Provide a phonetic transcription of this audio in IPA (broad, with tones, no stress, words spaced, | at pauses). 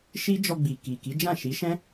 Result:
ʃi˦d͡ʒɔ˧ ɡ͡bi˨ki˨ki˨˦d͡ʒã˦˨ ʃi˨˦ʃɛ̃˦